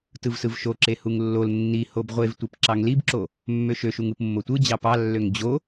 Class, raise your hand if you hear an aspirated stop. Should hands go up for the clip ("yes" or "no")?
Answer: no